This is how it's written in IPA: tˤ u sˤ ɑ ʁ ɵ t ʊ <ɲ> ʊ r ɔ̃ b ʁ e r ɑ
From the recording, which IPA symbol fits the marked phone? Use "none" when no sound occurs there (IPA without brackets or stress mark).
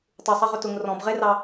ŋ